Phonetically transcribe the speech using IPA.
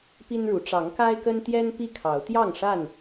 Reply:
pi˦nɻu˨˦ ʈ͡ʂɑ˨˦ŋka˦ɪ̯kə˦nt̪jɛ˦n pi˥˨kʰɑ˨˦ʊ̯ t̪jɑ˥˨ŋʂa˥˨n

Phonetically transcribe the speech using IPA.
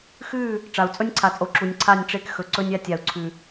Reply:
xʉ˦˨ | ʈ͡ʂa˨u̯t͡sʼɵ˦nʲǀʰa˨t͡sʼo˨ ǁu˨nʲǀʰa˦˨nʲ ʈ͡ʂe˦kxɵ˨ǀɵ˦nʲ a˦tʲa˨u̯ǀʰʉ˨

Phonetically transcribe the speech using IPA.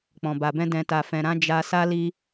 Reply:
k͡pɔ̃˨ba˨bɛ̃˧ dɛ̃˨ta˨fɛ̃˨ɾã˨˦ d͡ʒa˧sa˦li˦

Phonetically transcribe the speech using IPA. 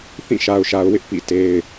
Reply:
θĩ˦˨ʃa˨ʊ̯ʃa˨ʊ̯wɪ˦ʔ pḭ˦˨te˦ɪ̯

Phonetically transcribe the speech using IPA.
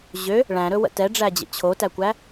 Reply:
ʑø | ɭæ̃ɾɵwə̰ tɛɖ͡ʐæd͡ʑə̰ t͡ɕʰotækʷæ

